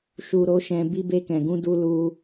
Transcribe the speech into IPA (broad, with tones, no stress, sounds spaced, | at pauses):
ʃ u˨ ɾ o˨˦ ʃ ɛ̃˧ b i˧ b e˧ k ɛ̃˨ ɡ ũ˧ d u˦ l u˦